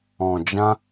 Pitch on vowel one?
low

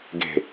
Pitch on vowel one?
low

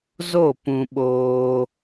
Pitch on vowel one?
falling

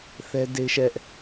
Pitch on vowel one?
high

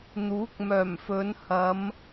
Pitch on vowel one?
rising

